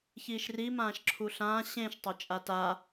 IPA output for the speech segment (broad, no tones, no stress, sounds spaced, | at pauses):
ç iː ʃ r i m ãː ʃ ǁʰ u ɬ ãː ɕ ẽ ʃ tˤ o t͡ʃʼ a t a